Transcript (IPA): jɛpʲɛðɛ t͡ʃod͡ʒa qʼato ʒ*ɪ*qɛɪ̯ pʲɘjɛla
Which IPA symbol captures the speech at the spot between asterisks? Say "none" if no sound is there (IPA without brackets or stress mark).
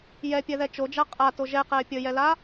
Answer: ɛ